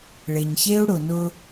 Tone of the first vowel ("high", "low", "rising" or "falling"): low